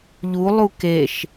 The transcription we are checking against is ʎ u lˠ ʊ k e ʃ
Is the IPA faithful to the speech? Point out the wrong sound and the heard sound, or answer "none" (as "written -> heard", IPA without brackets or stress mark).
ʊ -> u